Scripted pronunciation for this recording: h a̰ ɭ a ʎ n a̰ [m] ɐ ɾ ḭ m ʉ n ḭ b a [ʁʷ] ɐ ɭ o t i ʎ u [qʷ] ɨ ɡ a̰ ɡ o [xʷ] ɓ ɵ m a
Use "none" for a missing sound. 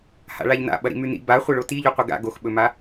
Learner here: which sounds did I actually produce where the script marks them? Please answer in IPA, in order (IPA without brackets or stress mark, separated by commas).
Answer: ɓ, χʷ, qʷ, x